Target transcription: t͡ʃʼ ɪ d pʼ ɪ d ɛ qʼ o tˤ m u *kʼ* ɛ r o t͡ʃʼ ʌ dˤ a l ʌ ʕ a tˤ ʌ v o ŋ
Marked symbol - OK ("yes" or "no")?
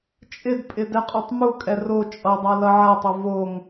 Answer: yes